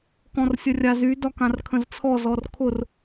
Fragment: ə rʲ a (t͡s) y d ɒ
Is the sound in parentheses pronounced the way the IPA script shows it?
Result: no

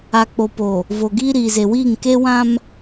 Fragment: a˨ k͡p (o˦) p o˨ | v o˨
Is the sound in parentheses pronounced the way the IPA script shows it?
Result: no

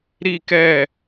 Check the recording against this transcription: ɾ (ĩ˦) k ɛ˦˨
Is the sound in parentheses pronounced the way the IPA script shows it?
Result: no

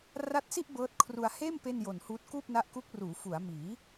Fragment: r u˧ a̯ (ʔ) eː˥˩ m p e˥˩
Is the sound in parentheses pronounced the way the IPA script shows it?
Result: no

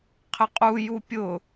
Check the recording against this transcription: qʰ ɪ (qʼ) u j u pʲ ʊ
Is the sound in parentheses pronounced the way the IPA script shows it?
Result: yes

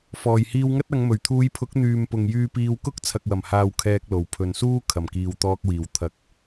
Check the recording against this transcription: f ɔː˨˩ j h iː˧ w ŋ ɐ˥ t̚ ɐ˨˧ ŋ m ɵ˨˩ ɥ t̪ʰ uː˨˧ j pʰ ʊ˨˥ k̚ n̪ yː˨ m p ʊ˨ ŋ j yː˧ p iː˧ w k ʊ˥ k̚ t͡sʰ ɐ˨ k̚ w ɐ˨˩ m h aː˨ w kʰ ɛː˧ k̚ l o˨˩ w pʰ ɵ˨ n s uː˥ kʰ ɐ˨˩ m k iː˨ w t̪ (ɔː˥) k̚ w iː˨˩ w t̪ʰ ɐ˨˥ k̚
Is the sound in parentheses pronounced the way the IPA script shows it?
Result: no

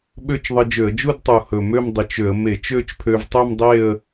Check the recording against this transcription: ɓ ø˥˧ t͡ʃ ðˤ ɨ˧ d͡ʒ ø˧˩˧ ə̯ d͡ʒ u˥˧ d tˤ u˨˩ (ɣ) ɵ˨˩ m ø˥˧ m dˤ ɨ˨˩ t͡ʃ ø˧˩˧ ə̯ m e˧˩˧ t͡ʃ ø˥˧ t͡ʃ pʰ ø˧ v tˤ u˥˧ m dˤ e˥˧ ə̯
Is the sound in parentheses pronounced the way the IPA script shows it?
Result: no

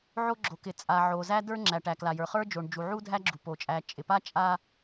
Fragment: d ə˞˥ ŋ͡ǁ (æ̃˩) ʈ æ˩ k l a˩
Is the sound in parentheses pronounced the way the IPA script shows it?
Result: no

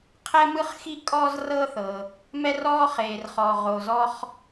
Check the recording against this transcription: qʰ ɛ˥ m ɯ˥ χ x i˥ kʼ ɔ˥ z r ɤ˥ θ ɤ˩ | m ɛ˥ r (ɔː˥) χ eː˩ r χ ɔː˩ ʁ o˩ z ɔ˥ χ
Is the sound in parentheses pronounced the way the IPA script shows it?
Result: yes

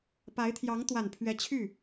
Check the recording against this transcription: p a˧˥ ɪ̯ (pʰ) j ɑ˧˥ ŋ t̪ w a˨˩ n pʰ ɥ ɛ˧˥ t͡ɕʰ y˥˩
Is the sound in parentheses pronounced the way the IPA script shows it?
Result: no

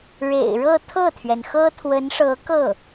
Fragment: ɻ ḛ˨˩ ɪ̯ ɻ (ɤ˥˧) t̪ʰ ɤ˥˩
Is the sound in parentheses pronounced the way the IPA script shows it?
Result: yes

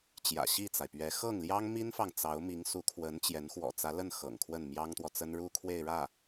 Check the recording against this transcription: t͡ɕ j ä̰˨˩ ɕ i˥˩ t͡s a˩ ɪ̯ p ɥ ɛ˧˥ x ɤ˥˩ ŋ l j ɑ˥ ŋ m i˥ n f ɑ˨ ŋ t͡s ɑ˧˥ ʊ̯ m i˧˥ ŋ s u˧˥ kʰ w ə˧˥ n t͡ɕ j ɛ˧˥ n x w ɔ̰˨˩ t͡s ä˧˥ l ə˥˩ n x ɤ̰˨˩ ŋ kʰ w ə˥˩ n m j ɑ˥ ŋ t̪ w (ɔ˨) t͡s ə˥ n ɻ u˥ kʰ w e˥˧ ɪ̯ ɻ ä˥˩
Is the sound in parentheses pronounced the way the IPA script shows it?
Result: yes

